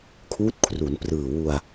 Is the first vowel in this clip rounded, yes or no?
yes